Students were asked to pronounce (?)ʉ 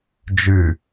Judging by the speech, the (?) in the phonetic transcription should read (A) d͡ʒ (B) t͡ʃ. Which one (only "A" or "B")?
A